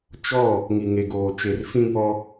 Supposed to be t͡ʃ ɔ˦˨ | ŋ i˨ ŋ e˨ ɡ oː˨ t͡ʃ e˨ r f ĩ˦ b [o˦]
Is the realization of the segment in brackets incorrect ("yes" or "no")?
yes